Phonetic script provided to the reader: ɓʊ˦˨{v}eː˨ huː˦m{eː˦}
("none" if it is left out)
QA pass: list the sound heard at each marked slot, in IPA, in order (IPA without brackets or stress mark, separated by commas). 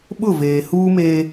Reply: v, eː˦